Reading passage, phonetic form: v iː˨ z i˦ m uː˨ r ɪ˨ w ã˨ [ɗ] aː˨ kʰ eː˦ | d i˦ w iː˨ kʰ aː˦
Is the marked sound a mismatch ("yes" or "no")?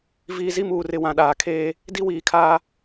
no